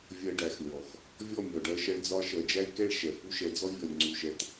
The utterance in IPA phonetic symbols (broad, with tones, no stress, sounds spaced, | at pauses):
vʲ ɜ˧ ɖ æ˨ x lʲ ɔ˨ x | vʲ ɔ˦˨ mʲ ɔ˨ ɖ ɜ˧ ʃ ɜ˧ ɭ d͡z ɒ˧ ʃ ɜ˨ d͡ʒ æ˦ i̯ k ɛ˦˨ ɭ ʃ ɛ˨ f u˦ ʃ ɛ˧ d͡z ɔ˦ vʲ ɔ˨ lʲ ŋ͡ǀ u˨ ʃ ɛ˨ t